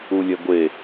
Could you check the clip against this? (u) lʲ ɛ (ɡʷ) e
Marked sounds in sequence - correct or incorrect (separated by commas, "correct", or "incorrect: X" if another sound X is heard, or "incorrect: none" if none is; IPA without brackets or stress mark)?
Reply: correct, correct